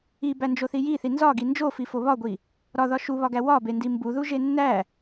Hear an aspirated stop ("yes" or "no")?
no